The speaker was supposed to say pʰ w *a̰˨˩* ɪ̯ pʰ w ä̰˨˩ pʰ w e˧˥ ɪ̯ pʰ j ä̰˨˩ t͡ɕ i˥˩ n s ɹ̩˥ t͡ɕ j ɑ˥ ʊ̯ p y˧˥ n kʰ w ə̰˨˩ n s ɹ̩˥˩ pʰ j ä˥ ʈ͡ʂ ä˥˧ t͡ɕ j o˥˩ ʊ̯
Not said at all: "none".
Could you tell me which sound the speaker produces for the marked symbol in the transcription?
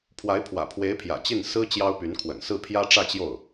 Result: a˧˥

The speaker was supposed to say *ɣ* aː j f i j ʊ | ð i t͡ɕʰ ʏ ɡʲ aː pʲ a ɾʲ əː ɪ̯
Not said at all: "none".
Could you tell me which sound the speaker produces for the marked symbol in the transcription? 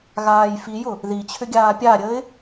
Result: ɣ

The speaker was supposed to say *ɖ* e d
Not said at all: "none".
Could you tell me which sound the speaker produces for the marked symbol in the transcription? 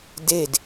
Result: d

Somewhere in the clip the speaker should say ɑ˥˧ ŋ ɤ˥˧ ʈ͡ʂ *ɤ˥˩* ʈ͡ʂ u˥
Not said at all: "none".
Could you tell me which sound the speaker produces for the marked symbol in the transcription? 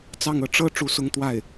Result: ɤ˥˩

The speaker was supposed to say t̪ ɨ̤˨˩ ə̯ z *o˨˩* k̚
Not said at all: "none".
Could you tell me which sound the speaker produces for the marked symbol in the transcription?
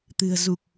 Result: u˨˩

